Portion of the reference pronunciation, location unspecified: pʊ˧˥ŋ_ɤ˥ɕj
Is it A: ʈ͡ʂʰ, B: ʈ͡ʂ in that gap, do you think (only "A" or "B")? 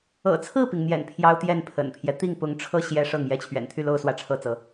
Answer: A